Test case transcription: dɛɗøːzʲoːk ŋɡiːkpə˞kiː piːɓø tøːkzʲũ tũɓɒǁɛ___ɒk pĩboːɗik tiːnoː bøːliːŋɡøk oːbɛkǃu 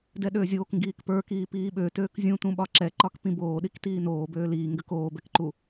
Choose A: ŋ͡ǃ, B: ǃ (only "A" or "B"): B